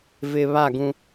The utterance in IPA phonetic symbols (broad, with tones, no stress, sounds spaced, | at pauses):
v ɪ˨ β a˦˨ ɡ ũ˦